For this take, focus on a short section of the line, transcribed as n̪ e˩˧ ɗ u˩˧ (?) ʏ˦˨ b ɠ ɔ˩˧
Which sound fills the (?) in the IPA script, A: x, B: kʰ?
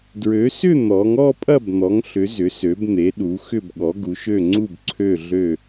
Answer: A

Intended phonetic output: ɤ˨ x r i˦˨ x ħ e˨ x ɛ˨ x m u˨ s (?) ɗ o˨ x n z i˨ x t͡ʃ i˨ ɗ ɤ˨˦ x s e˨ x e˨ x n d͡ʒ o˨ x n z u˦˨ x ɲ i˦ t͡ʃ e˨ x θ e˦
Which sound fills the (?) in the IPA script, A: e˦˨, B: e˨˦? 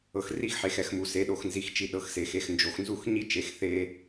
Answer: B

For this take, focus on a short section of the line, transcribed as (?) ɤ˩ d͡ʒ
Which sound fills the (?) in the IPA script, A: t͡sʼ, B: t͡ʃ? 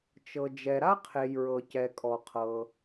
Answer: B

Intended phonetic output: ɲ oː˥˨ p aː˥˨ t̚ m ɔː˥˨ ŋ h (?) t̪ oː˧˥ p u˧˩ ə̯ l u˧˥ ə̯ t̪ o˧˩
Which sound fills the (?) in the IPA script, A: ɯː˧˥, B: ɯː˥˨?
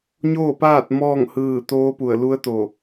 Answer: B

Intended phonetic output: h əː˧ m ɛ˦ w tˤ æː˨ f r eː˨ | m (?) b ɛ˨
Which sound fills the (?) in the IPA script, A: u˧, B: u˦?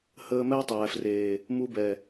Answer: A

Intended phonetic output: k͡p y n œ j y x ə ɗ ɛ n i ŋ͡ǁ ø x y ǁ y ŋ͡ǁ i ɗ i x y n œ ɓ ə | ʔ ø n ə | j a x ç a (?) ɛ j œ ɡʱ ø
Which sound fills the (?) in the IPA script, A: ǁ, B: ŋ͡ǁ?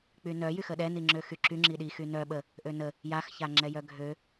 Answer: B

